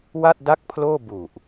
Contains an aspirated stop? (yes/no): yes